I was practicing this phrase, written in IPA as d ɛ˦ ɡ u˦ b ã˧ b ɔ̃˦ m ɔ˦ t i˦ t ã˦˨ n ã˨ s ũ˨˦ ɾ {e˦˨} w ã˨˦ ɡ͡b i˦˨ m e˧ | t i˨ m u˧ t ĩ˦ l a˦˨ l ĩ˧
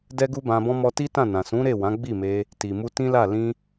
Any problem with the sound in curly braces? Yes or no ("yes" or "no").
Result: no